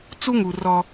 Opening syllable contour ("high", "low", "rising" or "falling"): high